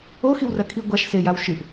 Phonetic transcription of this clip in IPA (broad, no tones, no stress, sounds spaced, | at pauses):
o x i w r ɐ kʰ i ɡʷ a ʃ s e j a w ʃ ɨ ʔ